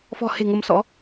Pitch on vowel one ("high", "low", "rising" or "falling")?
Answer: low